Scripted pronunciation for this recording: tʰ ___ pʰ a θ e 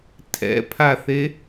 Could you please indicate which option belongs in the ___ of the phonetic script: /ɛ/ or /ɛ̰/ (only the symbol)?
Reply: ɛ̰